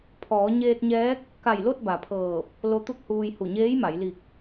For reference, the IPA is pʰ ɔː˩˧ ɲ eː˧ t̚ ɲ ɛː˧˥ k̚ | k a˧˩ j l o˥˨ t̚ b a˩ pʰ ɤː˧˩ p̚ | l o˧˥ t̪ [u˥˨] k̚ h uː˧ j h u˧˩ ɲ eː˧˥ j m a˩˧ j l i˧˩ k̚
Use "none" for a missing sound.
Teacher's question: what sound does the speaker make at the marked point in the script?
u˥˨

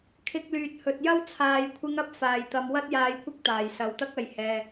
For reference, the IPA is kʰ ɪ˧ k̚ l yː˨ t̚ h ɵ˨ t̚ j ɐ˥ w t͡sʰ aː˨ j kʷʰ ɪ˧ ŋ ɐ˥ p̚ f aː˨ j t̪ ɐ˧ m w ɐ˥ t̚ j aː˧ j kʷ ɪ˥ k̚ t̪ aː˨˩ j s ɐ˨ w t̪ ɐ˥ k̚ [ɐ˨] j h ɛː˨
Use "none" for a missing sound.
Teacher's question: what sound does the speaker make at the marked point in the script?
ɐ˨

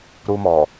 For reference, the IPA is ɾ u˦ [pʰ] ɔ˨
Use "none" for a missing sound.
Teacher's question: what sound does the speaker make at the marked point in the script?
m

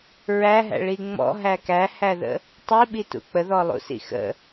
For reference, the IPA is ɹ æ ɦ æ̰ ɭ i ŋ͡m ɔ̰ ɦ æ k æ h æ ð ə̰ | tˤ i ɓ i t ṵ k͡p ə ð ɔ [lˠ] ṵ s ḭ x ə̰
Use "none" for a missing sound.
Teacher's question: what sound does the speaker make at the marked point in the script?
lˠ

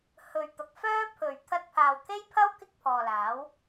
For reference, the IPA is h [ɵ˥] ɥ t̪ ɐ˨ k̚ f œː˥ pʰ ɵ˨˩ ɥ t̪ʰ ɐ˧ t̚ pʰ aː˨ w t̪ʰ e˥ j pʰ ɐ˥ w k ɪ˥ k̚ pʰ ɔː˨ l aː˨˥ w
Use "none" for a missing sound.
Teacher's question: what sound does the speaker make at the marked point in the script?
ɵ˨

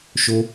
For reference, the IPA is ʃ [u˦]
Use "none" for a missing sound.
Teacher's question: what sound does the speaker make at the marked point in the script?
o˦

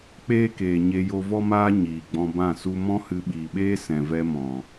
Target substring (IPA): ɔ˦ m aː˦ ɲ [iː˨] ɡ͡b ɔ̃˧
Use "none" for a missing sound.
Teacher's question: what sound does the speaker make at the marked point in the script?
iː˨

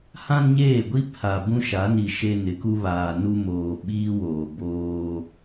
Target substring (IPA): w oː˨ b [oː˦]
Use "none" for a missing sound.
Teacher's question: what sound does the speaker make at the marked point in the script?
oː˦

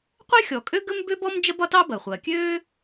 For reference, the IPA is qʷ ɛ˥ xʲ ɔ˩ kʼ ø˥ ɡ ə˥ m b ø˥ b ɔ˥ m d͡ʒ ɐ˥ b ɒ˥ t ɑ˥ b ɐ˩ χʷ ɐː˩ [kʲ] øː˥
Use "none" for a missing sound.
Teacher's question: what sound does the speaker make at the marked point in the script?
kʲ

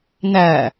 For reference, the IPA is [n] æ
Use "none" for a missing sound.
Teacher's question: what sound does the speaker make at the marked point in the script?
n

